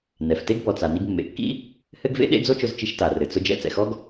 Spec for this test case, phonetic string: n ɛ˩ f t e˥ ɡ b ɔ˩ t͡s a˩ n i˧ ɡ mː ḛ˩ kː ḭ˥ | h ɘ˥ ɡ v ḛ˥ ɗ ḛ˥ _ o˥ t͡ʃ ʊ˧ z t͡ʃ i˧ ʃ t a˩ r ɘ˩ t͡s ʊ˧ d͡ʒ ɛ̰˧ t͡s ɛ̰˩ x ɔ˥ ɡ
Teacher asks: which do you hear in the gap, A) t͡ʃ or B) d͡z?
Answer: B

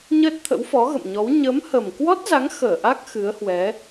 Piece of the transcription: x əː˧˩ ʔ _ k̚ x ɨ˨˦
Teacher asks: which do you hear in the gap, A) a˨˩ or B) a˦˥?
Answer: B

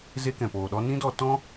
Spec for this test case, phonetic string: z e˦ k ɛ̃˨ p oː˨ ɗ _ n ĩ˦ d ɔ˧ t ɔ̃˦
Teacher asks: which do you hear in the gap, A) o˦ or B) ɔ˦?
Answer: B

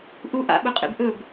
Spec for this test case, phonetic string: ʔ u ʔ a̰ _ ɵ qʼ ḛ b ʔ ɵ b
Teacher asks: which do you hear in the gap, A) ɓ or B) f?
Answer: A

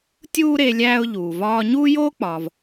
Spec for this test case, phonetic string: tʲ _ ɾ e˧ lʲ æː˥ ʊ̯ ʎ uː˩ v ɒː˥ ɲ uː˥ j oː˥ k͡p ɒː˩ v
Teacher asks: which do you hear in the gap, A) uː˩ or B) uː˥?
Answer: B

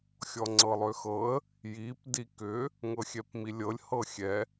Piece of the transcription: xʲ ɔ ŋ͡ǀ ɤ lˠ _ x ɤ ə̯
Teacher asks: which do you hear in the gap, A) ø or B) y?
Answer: A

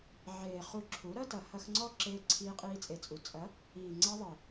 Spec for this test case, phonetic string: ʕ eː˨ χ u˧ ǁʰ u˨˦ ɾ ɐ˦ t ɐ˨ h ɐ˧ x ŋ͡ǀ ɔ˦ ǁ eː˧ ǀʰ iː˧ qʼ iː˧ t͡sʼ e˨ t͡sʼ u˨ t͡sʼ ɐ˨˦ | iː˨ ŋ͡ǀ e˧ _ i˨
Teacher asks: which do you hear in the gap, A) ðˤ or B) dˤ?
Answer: A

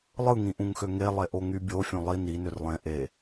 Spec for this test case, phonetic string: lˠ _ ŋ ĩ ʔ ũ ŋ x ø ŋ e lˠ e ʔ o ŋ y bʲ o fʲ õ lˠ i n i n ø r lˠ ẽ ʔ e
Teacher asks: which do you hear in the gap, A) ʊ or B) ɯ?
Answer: B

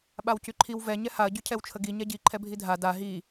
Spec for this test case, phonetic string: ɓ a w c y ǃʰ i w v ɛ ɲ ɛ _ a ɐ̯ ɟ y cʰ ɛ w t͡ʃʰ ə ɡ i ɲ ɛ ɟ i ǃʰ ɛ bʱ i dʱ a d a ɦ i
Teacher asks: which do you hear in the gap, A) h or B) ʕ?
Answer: A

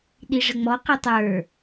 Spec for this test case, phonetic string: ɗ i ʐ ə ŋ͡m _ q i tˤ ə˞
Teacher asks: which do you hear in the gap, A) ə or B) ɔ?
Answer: B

